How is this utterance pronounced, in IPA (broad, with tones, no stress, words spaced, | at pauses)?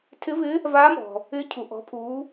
tʰɪ˧˥vɪː˧˥ | vaː˧˥mɔ̤˩ | ɪː˧˥cʰu˩ ʔɔ̤˩˧pʰuː˩˧